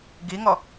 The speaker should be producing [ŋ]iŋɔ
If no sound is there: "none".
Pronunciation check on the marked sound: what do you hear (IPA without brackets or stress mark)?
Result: ɡ